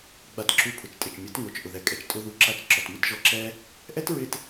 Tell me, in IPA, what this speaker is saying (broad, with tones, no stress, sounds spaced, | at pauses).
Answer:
ɡ͡b a˧ t ǁ u˧ pʰ ʊ˨ t͡ʃ tʼ ɪ˨ t͡ʃ mʲ ʊ˨˦ t ŋ o˨ t͡ʃ ʔ ʊ˨ ð ɛ˨ kʼ ɛ˨ t͡ʃ tʼ ʊ˦ ð u˧ ǁ a˦˨ t͡ʃ ǁ ɔ˨ t m ɪ˦ t ʒ ɔ˧ ǁ ɛ˦ | ʔ ɛ˦ t ɹ ɪ˧ t